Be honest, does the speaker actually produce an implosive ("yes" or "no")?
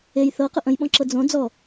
yes